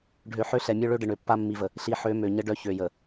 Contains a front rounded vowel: yes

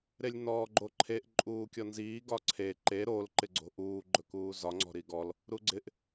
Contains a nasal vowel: no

